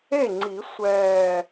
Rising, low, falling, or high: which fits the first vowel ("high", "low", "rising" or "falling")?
falling